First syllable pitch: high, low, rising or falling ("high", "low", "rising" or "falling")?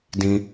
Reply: high